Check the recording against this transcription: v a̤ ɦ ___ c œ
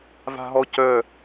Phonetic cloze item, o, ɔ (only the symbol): ɔ